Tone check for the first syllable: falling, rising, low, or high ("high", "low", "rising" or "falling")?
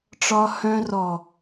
high